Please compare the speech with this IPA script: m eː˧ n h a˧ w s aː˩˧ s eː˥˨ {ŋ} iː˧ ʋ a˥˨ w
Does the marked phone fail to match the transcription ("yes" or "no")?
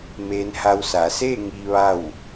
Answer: no